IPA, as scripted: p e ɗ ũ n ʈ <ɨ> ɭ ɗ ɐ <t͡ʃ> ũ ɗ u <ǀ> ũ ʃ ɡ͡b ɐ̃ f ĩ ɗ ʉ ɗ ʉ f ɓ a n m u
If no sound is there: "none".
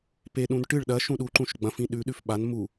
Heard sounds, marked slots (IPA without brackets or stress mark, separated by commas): ɨ, ʃ, ǃ